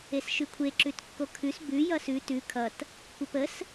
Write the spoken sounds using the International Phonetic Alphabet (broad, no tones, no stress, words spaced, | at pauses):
esʃʉkʷʰe ǁʉtkːokʰʉs bʉ jʌsʉ tʉ kʰʌt | kʷəpəs